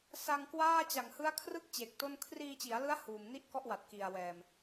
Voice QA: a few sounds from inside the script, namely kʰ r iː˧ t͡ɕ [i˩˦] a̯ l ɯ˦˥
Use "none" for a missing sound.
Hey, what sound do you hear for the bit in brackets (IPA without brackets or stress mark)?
i˩˦